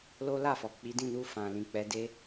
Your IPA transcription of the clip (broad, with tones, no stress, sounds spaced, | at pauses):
l o˦ l a˦˨ f ɔ˨ k͡p i˨˦ d ĩ˦˨ n u˧ f ã˨ l ĩ˨ k͡p ɛ˨˦ d e˦